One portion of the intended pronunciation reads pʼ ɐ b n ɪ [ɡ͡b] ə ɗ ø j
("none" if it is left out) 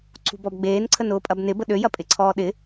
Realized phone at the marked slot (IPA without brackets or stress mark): b